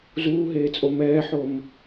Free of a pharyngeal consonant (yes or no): no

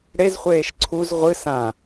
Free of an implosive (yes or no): yes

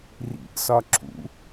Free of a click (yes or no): no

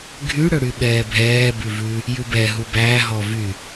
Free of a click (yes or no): yes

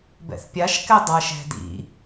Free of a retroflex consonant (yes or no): yes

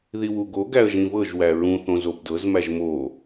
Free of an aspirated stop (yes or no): yes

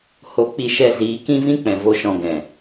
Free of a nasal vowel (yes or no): no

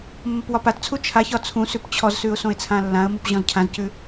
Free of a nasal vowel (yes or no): no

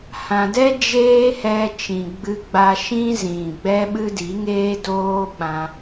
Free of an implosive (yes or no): no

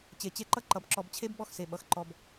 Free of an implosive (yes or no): no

